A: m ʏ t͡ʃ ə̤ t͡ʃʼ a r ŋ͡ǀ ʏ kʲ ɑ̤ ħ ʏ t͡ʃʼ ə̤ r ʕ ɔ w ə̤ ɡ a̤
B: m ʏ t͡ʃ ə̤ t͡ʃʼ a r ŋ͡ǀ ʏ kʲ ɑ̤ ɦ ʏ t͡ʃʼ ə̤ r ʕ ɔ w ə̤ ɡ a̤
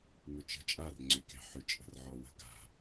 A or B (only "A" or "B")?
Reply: A